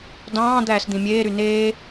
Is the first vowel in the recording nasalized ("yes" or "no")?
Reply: yes